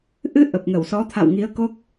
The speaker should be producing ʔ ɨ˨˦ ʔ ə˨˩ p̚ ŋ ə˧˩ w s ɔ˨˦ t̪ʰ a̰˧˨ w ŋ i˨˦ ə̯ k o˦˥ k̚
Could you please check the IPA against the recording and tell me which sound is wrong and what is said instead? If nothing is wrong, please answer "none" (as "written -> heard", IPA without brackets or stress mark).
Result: none